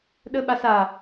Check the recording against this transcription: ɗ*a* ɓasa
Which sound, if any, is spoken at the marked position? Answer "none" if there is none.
ə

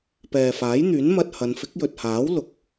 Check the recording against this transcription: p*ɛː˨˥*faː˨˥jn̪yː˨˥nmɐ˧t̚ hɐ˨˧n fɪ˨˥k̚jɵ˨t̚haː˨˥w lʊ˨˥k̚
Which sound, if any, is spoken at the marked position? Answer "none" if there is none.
ɛː˨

